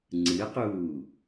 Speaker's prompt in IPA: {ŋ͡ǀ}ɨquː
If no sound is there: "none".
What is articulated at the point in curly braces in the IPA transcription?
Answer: ŋ͡ǀ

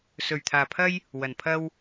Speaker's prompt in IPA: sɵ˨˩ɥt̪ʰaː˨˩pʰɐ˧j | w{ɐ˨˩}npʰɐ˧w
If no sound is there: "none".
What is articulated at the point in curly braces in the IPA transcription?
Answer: ɐ˨˩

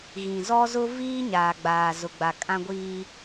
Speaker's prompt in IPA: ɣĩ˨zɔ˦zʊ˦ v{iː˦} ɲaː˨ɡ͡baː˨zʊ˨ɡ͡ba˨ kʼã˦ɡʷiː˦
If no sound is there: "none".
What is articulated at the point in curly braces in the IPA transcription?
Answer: iː˦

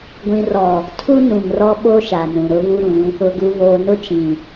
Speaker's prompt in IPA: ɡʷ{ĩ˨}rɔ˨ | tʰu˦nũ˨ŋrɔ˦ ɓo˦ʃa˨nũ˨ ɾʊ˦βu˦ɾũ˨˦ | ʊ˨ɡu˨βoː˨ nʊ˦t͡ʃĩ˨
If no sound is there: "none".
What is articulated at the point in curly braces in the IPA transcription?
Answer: ĩ˨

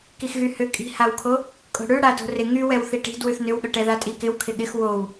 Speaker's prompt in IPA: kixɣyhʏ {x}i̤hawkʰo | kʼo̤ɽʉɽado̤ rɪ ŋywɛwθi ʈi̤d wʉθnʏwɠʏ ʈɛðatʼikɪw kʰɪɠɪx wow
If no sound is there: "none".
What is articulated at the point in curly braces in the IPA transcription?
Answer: kʼ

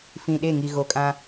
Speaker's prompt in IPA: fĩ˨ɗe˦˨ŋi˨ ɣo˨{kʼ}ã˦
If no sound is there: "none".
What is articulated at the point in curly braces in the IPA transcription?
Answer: kʼ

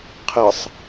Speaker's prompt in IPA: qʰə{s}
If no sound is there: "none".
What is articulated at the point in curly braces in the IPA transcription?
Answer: sˤ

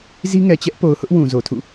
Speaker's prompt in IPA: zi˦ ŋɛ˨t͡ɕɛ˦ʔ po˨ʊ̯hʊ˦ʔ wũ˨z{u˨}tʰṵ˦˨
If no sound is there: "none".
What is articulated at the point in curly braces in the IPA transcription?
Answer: o˨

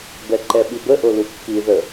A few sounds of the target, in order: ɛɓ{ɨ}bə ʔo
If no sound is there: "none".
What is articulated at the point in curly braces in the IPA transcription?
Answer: i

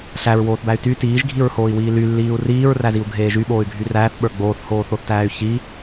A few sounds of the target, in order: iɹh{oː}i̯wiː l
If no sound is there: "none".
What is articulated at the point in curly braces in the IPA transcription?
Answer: oː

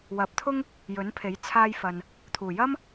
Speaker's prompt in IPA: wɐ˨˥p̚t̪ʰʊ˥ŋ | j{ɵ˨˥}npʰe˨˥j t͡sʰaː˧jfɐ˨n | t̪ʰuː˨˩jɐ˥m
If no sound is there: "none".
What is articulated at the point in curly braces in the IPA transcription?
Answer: ɵ˨˥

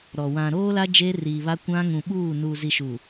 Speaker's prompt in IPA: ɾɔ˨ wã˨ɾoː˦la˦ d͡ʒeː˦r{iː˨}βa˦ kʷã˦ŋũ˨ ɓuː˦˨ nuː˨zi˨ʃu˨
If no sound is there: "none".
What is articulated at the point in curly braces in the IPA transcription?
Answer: iː˨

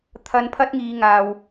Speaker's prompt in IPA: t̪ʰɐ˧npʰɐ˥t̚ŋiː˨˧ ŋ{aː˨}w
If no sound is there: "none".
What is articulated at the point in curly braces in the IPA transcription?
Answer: aː˨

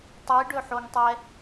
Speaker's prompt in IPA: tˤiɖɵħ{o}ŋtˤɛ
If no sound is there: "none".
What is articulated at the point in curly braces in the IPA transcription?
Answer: o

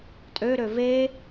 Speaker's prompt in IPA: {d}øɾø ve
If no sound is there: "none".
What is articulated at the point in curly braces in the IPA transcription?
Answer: tʼ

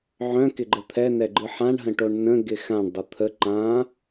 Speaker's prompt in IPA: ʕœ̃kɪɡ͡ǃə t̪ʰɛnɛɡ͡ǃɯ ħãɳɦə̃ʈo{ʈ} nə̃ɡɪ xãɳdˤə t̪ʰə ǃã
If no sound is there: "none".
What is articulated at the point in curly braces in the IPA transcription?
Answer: ɳ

